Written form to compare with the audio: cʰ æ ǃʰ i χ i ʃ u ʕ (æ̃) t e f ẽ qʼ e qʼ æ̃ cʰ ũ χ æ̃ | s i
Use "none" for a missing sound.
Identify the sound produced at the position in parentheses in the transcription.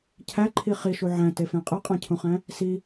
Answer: æ̃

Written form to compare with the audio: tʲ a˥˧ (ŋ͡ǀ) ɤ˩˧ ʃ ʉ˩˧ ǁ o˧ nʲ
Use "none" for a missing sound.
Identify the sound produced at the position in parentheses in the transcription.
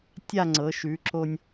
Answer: ŋ͡ǀ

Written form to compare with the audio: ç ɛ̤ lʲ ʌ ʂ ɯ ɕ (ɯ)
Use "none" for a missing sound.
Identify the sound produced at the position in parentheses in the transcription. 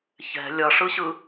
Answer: ɯ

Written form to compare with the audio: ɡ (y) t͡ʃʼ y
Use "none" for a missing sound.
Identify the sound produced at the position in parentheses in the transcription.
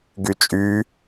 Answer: y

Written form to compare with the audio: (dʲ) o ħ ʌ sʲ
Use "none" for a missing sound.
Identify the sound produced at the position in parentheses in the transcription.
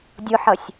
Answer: dʲ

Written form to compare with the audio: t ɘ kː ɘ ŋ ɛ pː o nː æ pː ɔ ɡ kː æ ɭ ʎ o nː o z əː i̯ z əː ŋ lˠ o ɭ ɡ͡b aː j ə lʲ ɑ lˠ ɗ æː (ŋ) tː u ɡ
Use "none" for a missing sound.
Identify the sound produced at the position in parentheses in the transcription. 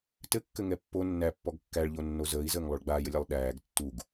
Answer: ɡ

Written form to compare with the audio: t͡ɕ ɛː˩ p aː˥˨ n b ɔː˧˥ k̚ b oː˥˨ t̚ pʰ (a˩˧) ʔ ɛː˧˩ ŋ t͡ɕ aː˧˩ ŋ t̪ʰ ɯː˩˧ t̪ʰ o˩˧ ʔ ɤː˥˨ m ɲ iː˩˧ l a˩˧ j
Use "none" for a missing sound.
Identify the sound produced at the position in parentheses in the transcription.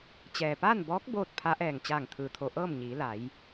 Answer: a˧˥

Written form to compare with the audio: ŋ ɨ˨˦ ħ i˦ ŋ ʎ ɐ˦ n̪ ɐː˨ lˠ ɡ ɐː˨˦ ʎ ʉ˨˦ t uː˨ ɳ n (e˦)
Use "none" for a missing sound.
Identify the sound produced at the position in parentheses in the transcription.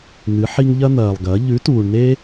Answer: e˦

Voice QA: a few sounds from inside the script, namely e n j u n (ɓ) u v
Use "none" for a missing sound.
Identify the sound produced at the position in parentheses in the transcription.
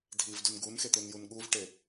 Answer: ɠ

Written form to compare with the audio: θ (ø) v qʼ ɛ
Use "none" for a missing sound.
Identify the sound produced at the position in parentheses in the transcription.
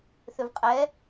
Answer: ø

